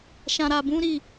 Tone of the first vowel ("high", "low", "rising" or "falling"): low